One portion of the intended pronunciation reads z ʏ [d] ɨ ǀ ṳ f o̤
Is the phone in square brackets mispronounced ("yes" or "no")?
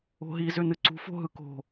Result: yes